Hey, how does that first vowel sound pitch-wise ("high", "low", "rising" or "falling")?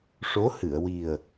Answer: rising